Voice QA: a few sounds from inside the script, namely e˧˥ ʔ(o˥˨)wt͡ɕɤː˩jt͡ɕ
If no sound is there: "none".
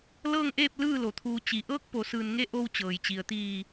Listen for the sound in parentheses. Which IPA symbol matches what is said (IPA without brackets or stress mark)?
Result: o˧